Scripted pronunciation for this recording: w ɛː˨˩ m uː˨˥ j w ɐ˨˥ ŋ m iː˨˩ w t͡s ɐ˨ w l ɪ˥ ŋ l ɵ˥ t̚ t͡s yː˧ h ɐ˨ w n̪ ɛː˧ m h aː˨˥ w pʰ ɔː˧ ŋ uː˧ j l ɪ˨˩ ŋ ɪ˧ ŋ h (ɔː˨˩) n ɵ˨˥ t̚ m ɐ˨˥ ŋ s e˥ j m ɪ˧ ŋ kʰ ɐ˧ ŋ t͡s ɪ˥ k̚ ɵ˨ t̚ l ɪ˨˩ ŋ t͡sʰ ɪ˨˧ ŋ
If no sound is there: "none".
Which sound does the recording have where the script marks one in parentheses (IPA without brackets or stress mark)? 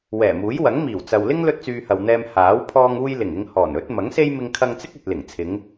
ɔː˨˩